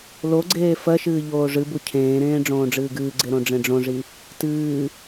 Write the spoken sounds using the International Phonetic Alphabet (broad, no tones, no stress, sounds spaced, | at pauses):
l o ɡ͡ǀ eː f ɜ ʃ ɨː ʎ oː ʐ ɨ b u cʰ ẽː ɾ ẽː ɖ͡ʐ õː ɖ͡ʐ ɨː ɡ ɨː ɡ͡ǀ e ɾ õ ɖ͡ʐ ẽ ɖ͡ʐ õ ʐ i | t ɨː